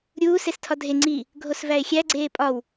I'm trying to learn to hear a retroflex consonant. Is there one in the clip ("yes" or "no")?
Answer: no